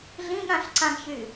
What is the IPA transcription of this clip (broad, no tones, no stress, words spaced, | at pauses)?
ɮĩɠãɬǀãɡçy